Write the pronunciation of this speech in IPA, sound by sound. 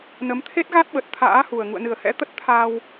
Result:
n ə˨˦ m t̪ʰ e˦˥ t̚ ɣ a˦˥ t̚ ɓ ə˨˩ t̚ t̪ʰ a̰ː˧˥ h u˨˩ ə̯ ŋ ṵ˧˨ ə̯ n ɨ˨˩ ə̯ h ɛ̰˧˥ t̪ ə˦˥ t̚ t̪ʰ a˧ w

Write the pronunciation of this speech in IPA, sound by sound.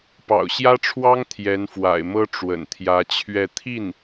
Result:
p ɑ̰˨˩ ʊ̯ ɕ j ä˥ ʈ͡ʂʰ w ɑ˥ ŋ t̪ʰ j ɛ˧˥ n f w a̰˨˩ ɪ̯ m ɤ˥ ʈ͡ʂ w ə̰˨˩ n t̪ʰ j ä˧˥ t͡ɕʰ ɥ ɛ˥˧ t̪ʰ i˥˩ n

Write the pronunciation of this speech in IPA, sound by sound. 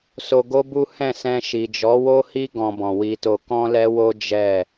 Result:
s o˧ ɡ o˦ b u˦ h ɛ̃˦˨ s ɛ̃˧ ʃ i˨ d͡ʒ ɔ˨˦ w o˦ h i˦ ɡ ɔ̃˧ b ɔ̃˨ w i˧ t o˧ k ɔ̃˦ l ɛ˦ w o˦ d͡ʒ ɛ˦˨

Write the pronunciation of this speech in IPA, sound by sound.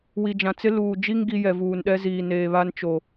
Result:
w i˨ d͡ʒ ã˨ t͡s ɪ˦ l uː˨ d͡ʒ i˦ ŋ ɡ i˦ j ɛ˨ v uː˨ n ɗ ɛ˦ z iː˨ n eː˨ β a˦ n t͡ʃ o˨

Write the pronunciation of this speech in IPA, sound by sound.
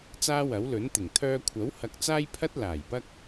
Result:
t͡s aː˥ w ɐ˨˥ w l ɵ˨˥ n t̪ ɪ˨˩ ŋ t̪ʰ œː˧ kʷʰ ɐ˨˥ w h ɐ˧ k̚ t͡s aː˥ j pʰ ɐ˥ t̚ l aː˨˩ j p ɐ˥ k̚

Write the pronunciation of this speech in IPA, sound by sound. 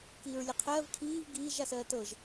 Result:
k iː ɹ lʲ ʌ qʰ ɜː v kʰ iː v ɡ iː ʒ a s ɜː t ɤ ʒ

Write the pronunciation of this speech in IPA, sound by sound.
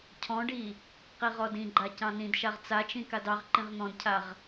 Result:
cʰ ɔ̃ ɖ i | q i ʁ ɔ d ĩ ɡ͡ǃ a c ɑ̃ n ĩ d ʃ a ʁ t͡s a t͡ʃ ĩ k a d ɑ ʁ ǃ ĩ ʁ n̪ ɔ̃ d cʰ a ʁ

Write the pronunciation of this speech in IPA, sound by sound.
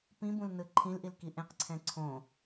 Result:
p ĩ b ũ l n ɯ ǃʰ ĩ l ʔ i l k i ʔ ẽ q ǀʰ ɛ̃ ǀʰ õ

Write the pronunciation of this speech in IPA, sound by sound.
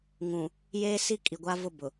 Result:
ŋ ũ˨ | j eː˦ s i˦ kʼ i˨ ɡʷ a˦ v ʊ˦˨ b ʊ˨

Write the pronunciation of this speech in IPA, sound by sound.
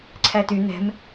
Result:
ǀʰ æ t y n̪ ɛ̤ m

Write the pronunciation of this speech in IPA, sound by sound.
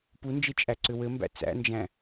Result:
p u n d͡ʒ e t͡ʃʼ æ ǀ ʏ w ɘ m b æ̰ t͡s æ̰ n d͡ʒ æ̃

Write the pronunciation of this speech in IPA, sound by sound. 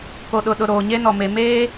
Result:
k o˨ ɗ ʊ˨ ɗ ʊ˨ ɾ oː˨ ɲ e˦ n ɔ˨ m e˨ m eː˦

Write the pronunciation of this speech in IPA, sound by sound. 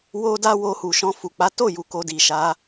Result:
w o˦ d a˦ w o˧ h u˨ ʃ ɔ̃˧ f u˨ k͡p a˨˦ t o˦˨ j u˧ k o˧ d i˨ ʃ a˨˦

